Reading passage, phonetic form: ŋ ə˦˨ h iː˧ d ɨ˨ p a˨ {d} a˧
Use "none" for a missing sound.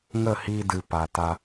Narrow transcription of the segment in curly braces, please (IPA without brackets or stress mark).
t